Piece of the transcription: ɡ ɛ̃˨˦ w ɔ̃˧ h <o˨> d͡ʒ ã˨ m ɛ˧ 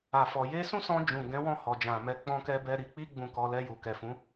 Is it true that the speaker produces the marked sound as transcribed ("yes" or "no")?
no